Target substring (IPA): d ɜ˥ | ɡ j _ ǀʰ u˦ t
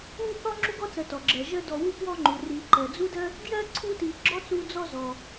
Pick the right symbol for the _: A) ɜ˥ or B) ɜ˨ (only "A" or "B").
A